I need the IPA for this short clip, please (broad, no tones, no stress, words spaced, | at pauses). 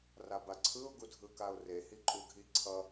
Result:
rabaǀʰɯʊ̯ ɡudʱɯkaʊ̯re hiǃʼuɡʱiǀʰʌ